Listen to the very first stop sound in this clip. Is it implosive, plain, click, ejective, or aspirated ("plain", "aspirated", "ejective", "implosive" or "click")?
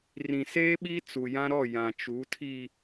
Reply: implosive